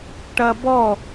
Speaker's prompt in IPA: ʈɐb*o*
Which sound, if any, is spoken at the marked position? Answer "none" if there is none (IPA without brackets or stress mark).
ɔ